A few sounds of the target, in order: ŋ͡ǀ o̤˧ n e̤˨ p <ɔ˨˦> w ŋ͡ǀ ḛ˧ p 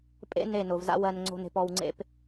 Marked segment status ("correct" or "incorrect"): incorrect